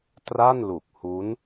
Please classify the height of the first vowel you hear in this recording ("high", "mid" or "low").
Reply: low